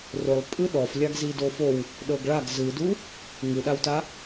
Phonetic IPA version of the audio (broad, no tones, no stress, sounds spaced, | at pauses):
r o lˠ pʼ ɯ ɗ ɔ f lʲ a ɡ z i d o f o w | ɗ ɤ ɡ ɭ a ɡ z ɯ d u | ŋ ɯ ɗ a w t a